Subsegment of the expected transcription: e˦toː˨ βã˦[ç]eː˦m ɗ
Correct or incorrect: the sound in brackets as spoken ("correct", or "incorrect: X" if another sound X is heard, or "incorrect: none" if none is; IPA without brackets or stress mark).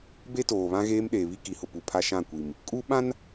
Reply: incorrect: ɣ